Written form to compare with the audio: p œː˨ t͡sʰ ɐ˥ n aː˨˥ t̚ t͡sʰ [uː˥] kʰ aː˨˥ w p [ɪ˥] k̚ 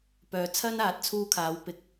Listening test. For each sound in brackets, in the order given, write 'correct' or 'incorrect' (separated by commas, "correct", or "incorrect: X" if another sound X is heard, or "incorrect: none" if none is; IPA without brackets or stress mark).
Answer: correct, incorrect: ɪ˧